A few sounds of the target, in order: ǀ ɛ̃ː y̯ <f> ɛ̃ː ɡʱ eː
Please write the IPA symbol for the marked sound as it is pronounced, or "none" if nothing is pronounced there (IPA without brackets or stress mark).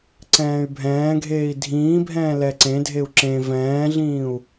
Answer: bʱ